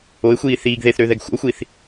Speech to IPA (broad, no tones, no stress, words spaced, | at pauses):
oɪ̯xʷiː θiːɡ ðeθɾøðɛɡ xʷə̰ʊ̯xʷiːθ